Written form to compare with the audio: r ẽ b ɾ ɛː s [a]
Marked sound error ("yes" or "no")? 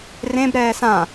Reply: yes